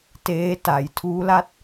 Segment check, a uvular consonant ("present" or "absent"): absent